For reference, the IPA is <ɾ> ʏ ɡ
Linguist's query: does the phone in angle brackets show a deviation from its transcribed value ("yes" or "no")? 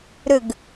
no